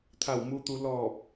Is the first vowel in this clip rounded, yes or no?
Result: no